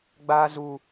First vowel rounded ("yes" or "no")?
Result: no